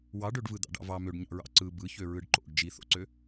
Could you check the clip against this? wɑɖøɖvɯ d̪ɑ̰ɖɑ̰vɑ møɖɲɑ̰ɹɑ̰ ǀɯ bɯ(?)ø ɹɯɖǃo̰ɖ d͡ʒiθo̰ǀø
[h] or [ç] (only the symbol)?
ç